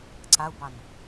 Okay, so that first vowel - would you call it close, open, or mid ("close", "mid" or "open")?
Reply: open